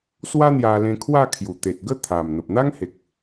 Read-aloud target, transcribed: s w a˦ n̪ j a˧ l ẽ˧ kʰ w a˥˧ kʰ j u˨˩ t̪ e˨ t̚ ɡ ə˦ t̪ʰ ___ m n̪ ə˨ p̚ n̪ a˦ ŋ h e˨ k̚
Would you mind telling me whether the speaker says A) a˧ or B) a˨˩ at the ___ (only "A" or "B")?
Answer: B